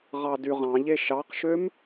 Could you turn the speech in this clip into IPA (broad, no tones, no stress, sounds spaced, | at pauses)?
ʁ ɑ d y ʁ ɑ̃ ʎ e ʃ ɑ q ʃ ø m